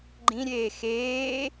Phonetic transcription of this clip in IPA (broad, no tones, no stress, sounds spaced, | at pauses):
ɡ͡ǃ ĩ ɾʲ eː x eː